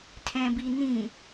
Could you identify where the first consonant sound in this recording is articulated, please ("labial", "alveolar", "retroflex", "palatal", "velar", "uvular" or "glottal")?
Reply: alveolar